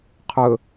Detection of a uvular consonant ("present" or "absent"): present